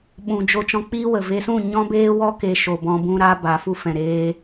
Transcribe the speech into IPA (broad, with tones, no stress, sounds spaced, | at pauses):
ɓ ũ˨ d͡ʒ o˧ t͡ʃ ɔ̃˧ k͡p iː˦ w ə˨ v e˧ s ũ˦˨ ɲ ɔ̃˦ b eː˦ w ɔ˦ k e˧ ʃ o˨ b ɔ̃˧ b ũ˦ ɾ a˦ b a˨˦ f u˦ f ɛ̃˨ ɾ eː˦